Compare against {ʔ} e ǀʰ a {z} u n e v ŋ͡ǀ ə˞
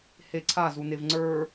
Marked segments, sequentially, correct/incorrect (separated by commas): incorrect, correct